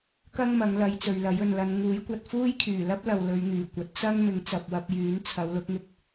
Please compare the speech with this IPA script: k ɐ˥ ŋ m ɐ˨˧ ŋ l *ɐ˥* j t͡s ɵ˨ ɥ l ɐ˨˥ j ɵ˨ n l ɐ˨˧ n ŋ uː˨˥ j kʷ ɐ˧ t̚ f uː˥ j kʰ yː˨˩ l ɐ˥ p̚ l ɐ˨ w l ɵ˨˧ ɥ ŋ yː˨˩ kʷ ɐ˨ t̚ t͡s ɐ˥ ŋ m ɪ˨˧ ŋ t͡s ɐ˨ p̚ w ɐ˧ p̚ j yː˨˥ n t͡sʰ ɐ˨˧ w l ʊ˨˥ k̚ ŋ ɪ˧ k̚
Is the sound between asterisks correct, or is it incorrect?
incorrect